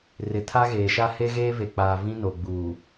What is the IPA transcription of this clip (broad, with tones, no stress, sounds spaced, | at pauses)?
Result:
r ɪ˨ tʰ a˦ ɣ eː˨ ʃ a˦ h e˦ ɣ eː˦ v e˨ k͡p aː˨ v ĩ˦ n o˨ ɡ͡b uː˨